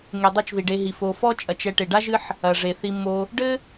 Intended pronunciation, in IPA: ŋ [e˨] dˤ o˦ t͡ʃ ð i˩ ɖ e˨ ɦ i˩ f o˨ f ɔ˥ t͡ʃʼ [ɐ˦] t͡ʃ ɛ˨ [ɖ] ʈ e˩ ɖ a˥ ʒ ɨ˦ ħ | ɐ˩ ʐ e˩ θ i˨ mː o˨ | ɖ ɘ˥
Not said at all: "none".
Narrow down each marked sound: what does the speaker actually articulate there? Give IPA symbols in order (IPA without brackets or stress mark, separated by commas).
e˨, ɐ˨, none